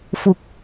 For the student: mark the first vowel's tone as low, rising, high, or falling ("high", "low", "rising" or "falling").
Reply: low